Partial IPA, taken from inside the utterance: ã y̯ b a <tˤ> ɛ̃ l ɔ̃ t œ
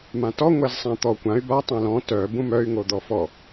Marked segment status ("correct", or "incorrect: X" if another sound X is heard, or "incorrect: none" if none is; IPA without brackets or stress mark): correct